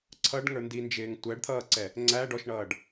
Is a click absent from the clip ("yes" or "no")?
no